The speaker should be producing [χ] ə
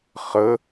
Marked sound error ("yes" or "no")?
no